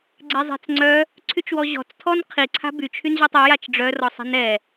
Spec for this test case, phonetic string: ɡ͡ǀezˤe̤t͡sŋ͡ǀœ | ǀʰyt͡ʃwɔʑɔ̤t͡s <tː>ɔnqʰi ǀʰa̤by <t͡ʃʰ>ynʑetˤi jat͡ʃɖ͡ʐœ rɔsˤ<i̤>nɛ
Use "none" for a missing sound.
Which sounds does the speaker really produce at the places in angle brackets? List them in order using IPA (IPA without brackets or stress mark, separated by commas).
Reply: tʰ, t͡ʃʰ, e̤